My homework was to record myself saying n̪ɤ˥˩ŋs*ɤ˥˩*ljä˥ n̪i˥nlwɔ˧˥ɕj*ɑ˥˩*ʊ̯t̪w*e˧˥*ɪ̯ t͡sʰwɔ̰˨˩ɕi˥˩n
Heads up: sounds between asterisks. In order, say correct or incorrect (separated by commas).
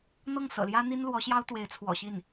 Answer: incorrect, incorrect, correct